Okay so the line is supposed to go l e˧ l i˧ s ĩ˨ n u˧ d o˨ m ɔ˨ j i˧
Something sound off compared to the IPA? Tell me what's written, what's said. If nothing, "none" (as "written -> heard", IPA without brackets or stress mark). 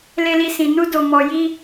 none